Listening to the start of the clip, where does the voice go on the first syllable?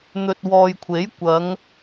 low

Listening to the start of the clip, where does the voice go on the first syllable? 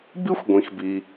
high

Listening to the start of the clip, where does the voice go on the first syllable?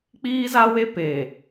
high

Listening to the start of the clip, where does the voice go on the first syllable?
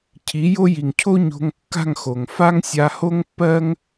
rising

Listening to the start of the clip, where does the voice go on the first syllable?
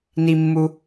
high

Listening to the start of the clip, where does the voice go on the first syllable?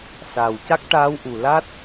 low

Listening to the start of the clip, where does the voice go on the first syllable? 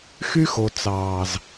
high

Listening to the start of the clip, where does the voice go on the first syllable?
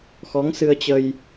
rising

